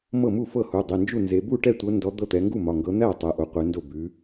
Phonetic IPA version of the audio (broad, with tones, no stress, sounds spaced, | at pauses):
m ɤ˥˩ m u˥˩ f ɤ˥˩ h u˩˧˩ dˤ e˩˧˩ n d͡ʒ u˥˩ n z e˨˦ b u˥˩ ʈ ɛ˥˩ tʷ ɤ˨˦ n d ɔ˨˦ d̪ ɤ˥˩ t̪ ɛ˨˦ ŋ ɡ u˥˩ m ɒ˩˧˩ ŋ ɡ ɤ˨˦ n̪ æ˥˩ tˤ ɛ˨˦ ʔ o˨˦ qʷ ɛ˨˦ n d o˥˩ b ʉ˨˦